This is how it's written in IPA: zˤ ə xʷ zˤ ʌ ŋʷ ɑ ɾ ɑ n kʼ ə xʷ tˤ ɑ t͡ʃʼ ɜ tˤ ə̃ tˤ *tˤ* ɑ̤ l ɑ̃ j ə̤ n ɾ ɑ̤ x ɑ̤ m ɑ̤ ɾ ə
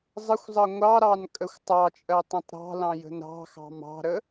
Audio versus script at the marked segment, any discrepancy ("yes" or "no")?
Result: yes